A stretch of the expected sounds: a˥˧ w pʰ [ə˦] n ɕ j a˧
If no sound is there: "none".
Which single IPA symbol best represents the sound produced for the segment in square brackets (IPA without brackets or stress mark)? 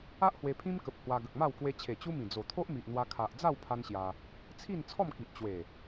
a˦